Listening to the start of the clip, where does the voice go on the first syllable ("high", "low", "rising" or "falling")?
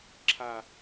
low